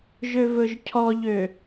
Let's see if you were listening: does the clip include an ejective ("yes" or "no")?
no